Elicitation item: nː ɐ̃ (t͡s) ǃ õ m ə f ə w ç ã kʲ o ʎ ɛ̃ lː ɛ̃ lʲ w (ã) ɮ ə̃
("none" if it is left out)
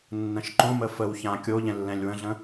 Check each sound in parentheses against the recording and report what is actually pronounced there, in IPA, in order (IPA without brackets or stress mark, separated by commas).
ʃ, ə̃